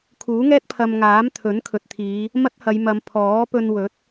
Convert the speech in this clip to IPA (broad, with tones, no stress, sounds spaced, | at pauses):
kʰ uː˨˥ ŋ ɛː˥ t̚ pʰ ɐ˧ m ŋ aː˨˥ m t̪ʰ ɵ˨˥ n kʰ ɵ˨ t̚ t̪ʰ iː˨˧ | m ɐ˥ t̚ h ɐ˨˧ j m ɐ˨˧ m pʰ ɔː˨˥ p ɵ˧ n w ɵ˨˥ t̚